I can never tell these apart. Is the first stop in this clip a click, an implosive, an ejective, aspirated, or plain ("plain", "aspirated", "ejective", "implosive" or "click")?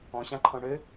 click